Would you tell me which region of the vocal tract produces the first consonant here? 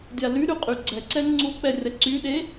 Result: tongue tip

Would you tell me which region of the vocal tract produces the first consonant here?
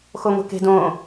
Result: velum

